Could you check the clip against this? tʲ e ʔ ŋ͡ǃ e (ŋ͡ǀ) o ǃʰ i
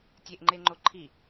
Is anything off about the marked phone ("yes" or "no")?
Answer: yes